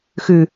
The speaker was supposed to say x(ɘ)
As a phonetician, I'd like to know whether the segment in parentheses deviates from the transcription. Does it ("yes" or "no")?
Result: yes